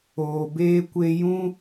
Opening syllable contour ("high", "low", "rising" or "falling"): low